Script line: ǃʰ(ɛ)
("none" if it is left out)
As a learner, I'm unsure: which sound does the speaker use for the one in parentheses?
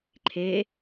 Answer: e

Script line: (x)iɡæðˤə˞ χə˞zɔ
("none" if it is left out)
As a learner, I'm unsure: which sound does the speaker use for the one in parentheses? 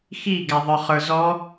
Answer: x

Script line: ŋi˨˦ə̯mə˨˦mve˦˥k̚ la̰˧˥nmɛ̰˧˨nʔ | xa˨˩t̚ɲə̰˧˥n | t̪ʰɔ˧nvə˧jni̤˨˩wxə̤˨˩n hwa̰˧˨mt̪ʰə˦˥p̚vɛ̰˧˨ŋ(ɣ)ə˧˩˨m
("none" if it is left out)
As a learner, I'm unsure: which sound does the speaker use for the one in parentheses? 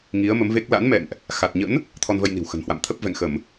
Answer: x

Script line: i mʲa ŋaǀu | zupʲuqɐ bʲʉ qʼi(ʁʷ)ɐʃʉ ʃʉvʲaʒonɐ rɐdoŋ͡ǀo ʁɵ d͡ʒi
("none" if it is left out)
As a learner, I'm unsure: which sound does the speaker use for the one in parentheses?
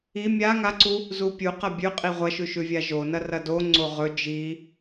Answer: ʁʷ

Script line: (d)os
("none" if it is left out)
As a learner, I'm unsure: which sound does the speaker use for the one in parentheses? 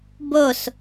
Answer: b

